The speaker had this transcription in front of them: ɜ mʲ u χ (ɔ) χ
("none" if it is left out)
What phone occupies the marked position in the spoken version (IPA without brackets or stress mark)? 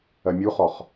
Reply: ɔ